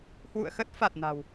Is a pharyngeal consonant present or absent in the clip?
absent